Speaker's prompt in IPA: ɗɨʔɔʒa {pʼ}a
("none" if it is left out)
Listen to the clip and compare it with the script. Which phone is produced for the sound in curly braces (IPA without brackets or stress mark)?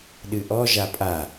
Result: pʼ